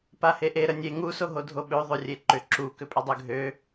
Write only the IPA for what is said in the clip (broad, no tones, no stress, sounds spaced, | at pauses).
p a h e ʔ e ɾ ə nʲ e ŋ u s o ɦ o dʱ o ɓ ø ðˤ o rʲ e ǃ ʏ ǁ u k ʏ pʼ ʏ dˤ ø ɡʱ ø